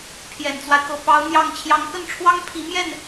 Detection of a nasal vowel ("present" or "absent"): absent